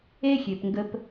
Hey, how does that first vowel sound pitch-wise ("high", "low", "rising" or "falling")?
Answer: high